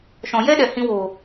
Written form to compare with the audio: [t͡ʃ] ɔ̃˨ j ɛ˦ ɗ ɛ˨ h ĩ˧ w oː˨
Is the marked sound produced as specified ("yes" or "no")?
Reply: no